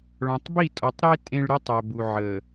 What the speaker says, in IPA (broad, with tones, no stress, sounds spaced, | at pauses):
ɭ ɔ̃˨ tˤ b i˦˨ tʼ ɔ˨ tˤ ɾ e˦ tʼ ẽ˦ ɭ ɾ y˦ tˤ œ˨ b u˨ ʕ ə˨